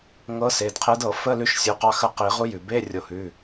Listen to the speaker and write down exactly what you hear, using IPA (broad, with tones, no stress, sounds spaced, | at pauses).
ŋ ɤ˧˥ s e˩˧˩ d qʰ e˧˥ d ɤ˨˩˦ f ə˧˥˧ l ʉ˧˥ ʃ sʲ u˩˧˩ q ɑ˦˨ x ə˦˨ q i˨˩˦ ʁ u˧˥ j ʉ˩ b e˧˥˧ rʲ o˨˩˦ h ʉ˩˧˩